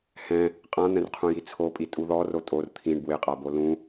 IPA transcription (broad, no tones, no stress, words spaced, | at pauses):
hɛ̃ | qʼãn̪ɛ̃rqʰũji t͡sʰopʼi tʼuðɔ rotʼor t̪ʰĩɳ bwɪqʼabo lũ